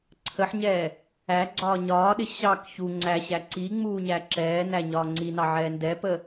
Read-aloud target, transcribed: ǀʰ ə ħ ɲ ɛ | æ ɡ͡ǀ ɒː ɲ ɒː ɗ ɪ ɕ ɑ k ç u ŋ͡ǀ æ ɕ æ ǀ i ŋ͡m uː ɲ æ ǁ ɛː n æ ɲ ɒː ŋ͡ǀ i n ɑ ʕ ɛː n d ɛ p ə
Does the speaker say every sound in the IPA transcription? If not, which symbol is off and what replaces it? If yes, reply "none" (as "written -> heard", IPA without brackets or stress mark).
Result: none